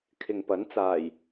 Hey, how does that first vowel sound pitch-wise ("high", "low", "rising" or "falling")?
low